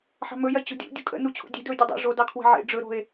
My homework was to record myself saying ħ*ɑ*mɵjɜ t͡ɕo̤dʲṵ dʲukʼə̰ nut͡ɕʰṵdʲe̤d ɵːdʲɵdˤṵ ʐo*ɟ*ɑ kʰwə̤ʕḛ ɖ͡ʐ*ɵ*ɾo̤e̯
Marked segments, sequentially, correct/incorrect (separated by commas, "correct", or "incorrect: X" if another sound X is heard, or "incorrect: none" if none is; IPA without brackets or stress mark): incorrect: ɑ̤, incorrect: d, correct